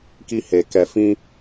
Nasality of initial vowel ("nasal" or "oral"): oral